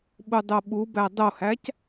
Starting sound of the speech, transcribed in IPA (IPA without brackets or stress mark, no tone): ɓ